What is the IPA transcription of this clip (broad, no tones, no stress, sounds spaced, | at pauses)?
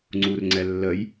ŋ͡ǀ u r ŋ͡ǀ ɛ lː ə j